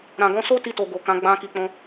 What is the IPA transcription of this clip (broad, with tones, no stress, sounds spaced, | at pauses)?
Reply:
ɾ ã˨ ɡ ɔ̃˧ s o˦ t i˧ t o˨ ɡ o˨ k ã˨˦ ɡ͡b ã˧ k i˨ k͡p ɔ̃˧